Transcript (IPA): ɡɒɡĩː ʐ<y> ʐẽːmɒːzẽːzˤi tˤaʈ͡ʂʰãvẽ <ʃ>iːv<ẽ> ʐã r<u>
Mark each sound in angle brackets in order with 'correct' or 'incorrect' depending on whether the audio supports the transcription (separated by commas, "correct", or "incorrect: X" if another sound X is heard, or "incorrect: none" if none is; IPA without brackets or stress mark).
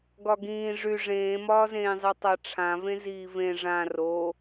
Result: correct, incorrect: z, correct, incorrect: o